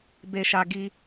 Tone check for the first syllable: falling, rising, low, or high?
low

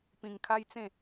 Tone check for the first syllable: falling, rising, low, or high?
low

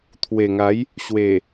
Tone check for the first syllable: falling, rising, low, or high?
low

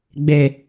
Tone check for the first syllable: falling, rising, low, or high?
low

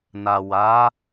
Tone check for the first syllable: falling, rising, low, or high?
low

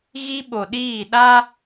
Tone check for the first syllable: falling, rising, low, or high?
high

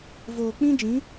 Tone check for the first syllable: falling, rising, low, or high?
low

